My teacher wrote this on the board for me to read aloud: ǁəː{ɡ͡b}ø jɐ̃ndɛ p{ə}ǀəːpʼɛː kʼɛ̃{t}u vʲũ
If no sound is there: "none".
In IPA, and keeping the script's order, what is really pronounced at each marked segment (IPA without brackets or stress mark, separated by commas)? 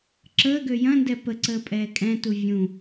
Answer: ɡ, ə, t